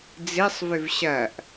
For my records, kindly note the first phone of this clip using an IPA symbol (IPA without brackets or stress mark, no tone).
d͡z